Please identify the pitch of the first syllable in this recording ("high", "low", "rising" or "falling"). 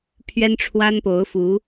high